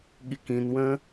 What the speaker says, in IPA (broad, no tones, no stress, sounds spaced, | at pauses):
ɠ i k ĩ n w ə̃